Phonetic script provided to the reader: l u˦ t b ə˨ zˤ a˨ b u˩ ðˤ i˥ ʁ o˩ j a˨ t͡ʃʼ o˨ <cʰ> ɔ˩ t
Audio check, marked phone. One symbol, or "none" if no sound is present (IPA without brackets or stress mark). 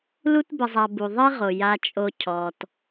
cʰ